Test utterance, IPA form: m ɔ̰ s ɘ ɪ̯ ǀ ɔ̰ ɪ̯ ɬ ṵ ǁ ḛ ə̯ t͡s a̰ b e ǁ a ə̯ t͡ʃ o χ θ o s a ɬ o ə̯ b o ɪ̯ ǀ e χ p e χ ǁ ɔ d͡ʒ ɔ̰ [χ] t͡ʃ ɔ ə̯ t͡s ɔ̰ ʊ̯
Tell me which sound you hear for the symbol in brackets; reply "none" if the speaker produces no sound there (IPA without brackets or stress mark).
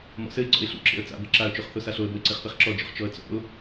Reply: χ